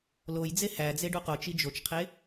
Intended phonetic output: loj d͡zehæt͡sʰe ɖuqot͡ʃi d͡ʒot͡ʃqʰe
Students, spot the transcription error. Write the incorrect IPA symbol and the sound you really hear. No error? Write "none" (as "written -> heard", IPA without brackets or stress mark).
t͡sʰ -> d͡z